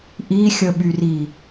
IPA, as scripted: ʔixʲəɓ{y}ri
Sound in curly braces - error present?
no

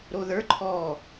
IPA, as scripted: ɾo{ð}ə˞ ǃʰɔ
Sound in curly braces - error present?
no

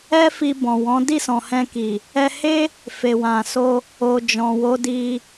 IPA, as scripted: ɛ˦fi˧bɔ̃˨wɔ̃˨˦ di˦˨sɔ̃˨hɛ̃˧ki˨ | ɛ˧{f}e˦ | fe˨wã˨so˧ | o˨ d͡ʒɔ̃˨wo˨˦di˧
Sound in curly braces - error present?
yes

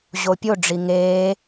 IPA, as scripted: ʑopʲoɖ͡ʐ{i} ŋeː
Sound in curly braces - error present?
no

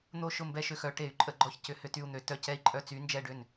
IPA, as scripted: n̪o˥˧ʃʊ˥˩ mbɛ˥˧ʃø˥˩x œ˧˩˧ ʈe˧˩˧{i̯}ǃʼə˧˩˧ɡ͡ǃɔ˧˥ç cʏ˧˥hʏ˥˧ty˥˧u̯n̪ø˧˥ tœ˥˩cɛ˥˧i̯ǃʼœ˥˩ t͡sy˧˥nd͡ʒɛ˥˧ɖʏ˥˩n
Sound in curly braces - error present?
yes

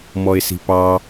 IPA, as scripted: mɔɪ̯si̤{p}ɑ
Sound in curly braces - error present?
no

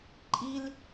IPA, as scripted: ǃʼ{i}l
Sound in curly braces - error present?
no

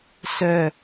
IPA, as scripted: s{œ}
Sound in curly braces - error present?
no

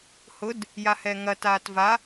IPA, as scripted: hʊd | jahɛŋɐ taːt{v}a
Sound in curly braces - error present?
no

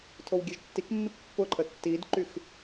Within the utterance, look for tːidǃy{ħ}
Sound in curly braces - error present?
yes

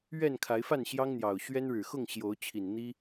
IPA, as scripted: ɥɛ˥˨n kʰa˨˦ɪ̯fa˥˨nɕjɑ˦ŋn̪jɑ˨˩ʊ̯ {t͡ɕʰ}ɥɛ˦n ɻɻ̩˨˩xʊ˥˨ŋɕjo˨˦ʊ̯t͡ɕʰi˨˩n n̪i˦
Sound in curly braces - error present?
yes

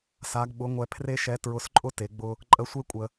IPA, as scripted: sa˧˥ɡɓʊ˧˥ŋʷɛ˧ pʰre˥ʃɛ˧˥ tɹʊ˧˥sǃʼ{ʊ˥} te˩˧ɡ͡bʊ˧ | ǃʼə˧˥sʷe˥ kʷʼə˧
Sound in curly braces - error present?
no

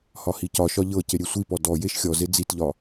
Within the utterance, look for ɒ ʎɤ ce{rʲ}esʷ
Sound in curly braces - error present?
yes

